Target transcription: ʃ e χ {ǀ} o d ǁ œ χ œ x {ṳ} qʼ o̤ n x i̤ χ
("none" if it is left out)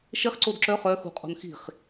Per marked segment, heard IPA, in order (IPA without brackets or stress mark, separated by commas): ǀ, ṳ